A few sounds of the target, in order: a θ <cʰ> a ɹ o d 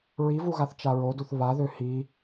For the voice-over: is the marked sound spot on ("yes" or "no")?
no